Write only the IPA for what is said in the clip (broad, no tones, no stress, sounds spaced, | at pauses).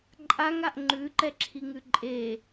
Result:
ǃʼ a ŋ a ʔ ŋ͡ǃ ʉ ǃ ɛ ǁʰ i ŋ ʉ ǃʼ e